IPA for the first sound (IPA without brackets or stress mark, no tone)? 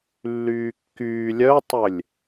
lː